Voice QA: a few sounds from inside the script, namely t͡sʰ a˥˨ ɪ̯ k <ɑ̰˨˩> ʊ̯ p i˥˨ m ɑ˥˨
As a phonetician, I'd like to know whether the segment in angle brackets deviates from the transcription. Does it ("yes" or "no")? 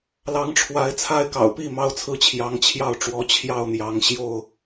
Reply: no